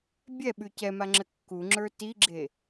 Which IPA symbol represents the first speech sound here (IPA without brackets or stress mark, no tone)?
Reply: bʲ